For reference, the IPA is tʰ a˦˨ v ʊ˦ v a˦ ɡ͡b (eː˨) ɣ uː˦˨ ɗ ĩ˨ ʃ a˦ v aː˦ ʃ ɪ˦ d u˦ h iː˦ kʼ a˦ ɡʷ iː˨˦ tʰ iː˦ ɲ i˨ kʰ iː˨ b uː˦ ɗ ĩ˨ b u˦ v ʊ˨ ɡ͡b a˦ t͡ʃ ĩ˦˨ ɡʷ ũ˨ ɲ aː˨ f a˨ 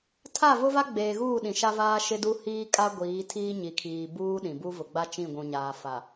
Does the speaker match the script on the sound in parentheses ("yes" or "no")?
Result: yes